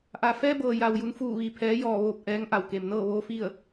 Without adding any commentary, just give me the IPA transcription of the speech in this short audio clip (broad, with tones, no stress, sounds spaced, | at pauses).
ʔ a˩ f ɛː˧ b ɤː˩ j a˩ w j u˩˧ n f uː˧˩ ʋ iː˩ pʰ ɛː˩˧ j ɔː˧˩ ʋ oː˧˩ p̚ ʔ ɛː˩˧ ŋ ʔ a˩ w k e˩ m n ɤː˥˨ ʋ oː˧˥ f i˥˨ ə̯